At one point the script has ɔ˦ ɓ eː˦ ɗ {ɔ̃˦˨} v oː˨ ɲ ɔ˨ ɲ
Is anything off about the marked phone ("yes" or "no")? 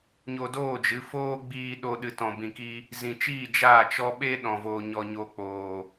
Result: yes